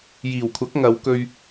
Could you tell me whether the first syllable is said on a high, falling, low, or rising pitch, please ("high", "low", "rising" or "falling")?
low